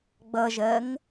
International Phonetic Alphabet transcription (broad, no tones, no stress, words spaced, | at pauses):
ɡ͡bʌʒɜŋ